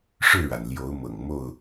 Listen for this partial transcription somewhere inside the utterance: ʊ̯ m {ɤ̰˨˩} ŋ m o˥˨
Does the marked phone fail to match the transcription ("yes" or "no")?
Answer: no